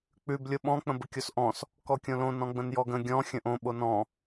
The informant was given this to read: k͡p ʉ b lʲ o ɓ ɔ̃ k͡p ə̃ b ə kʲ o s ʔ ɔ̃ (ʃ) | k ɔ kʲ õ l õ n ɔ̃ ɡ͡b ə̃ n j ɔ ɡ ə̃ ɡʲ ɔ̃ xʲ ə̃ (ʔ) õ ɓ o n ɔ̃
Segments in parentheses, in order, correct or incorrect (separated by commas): incorrect, correct